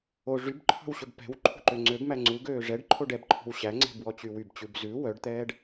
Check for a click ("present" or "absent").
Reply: present